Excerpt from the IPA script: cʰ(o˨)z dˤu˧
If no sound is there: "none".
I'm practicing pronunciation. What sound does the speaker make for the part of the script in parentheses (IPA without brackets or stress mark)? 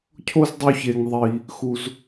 o˦